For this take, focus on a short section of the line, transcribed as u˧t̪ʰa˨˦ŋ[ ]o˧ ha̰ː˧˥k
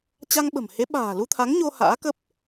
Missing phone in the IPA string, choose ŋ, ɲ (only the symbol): ɲ